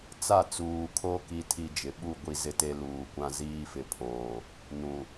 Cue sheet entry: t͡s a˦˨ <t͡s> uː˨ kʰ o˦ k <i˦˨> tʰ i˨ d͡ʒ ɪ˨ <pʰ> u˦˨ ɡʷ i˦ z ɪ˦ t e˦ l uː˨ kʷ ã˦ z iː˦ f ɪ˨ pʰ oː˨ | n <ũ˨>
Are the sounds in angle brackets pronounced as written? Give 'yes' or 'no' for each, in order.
yes, no, no, yes

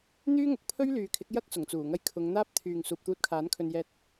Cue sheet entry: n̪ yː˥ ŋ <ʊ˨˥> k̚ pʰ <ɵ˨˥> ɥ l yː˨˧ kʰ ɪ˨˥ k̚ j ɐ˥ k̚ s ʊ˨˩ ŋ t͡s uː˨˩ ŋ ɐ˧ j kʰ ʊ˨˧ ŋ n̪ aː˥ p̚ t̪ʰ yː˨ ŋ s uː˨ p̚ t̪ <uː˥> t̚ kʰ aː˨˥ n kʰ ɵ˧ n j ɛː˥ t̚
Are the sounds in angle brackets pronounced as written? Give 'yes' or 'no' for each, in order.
yes, no, no

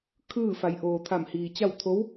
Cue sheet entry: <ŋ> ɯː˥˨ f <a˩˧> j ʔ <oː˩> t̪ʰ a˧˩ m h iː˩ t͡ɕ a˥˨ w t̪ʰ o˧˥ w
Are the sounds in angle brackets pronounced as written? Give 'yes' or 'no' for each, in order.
no, yes, yes

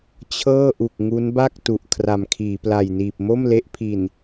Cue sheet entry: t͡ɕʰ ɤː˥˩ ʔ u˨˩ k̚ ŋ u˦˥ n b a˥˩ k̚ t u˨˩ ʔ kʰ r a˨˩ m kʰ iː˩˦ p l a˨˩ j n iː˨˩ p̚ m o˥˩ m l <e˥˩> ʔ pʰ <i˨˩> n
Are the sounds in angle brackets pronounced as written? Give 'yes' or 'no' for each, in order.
no, yes

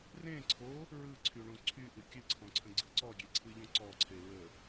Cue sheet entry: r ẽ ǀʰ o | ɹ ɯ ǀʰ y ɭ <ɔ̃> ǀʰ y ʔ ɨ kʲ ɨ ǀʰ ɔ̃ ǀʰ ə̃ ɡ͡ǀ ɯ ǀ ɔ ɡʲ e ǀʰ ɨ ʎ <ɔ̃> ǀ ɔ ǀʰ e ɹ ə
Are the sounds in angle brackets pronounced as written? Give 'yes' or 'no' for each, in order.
no, yes

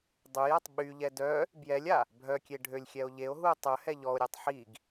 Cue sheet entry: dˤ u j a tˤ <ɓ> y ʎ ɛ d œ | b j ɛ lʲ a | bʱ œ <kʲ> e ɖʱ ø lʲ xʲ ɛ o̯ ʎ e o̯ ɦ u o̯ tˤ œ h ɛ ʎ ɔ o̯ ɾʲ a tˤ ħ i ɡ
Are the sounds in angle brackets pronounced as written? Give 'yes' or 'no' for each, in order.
yes, yes

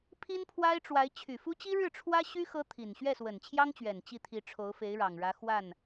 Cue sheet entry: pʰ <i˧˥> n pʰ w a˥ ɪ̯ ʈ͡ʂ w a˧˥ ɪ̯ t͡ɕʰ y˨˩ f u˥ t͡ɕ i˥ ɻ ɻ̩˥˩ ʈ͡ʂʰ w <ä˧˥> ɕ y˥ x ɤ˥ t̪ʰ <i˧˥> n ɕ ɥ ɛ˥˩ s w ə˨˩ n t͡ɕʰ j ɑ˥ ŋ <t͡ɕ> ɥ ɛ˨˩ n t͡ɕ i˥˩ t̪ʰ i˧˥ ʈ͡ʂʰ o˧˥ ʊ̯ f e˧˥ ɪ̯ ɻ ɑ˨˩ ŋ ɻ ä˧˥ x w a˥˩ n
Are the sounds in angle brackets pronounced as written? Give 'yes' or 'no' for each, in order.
no, no, no, yes

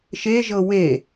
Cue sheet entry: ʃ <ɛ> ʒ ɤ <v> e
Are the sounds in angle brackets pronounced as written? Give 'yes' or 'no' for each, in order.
no, no

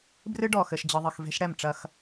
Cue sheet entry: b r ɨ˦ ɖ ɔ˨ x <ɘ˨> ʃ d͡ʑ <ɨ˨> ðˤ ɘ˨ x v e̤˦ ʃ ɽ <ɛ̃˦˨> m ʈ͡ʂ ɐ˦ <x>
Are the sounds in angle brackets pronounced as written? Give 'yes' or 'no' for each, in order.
yes, yes, no, yes

